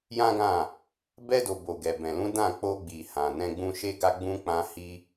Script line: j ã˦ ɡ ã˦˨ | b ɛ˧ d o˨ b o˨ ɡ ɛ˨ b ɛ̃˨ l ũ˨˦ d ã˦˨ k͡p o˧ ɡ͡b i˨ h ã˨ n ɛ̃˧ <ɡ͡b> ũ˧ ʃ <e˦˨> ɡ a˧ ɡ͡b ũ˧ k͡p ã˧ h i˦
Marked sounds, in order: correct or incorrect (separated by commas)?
correct, incorrect